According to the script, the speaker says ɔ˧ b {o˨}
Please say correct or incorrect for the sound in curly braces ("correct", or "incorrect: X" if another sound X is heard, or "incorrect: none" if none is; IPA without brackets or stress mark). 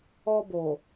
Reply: correct